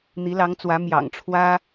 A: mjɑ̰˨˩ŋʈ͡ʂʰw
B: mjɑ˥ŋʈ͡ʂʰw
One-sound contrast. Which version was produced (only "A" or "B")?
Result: A